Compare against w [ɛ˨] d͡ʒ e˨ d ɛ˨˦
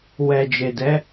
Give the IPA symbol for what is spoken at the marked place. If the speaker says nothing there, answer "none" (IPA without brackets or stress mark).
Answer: ɛ˨